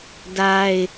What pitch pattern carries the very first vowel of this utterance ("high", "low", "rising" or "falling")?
high